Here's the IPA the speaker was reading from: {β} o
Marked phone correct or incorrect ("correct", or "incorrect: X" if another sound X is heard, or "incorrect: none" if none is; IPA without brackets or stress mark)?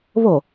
correct